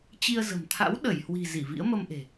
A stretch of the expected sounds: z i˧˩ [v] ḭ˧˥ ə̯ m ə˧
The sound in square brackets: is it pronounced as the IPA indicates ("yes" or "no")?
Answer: yes